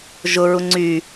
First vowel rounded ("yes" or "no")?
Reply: yes